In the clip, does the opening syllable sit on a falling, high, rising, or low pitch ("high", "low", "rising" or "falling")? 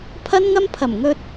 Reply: high